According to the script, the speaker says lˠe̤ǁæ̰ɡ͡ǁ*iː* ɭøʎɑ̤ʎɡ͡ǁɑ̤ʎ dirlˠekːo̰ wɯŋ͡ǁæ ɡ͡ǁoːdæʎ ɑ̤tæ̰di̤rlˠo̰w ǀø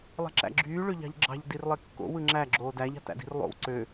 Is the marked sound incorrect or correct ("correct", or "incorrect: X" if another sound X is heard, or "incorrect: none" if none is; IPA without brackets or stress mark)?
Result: incorrect: yː